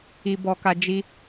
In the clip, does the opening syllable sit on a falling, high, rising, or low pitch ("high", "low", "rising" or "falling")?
high